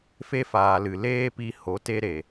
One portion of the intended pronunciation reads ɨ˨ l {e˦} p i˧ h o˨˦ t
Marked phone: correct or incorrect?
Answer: incorrect